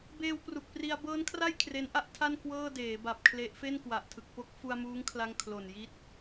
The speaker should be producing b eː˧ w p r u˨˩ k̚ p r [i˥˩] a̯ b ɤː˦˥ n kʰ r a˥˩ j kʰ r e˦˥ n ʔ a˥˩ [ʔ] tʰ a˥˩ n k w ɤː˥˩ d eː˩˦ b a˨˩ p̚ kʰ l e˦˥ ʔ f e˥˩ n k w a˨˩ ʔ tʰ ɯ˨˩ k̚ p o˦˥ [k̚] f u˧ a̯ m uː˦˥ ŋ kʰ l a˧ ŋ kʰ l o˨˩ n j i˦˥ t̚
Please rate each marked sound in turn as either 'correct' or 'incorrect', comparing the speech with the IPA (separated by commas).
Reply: incorrect, correct, correct